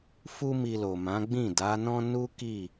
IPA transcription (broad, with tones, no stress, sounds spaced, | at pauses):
f u˦ m i˧ l o˨ m ã˨˦ ɡ͡b ĩ˦˨ d a˨˦ n ɔ̃˦ n u˦ k i˦˨